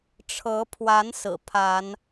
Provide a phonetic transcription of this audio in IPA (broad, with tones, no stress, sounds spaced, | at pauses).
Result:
ʈ͡ʂʰ ɤ˨˦ pʰ w a˨˦ n s ɹ̩˨˩ pʰ a˨˦ n